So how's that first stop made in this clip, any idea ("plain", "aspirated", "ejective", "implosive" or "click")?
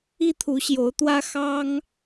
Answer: aspirated